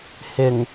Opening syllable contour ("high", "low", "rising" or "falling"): low